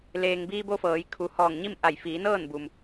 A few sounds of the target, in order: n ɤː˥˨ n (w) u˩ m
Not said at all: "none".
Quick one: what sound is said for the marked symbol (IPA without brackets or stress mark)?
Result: b